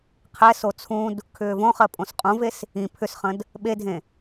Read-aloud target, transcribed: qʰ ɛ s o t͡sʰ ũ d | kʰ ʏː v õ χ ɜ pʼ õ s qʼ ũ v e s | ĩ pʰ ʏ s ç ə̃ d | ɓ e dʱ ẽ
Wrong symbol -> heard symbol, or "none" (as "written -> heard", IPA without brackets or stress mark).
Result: ç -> χ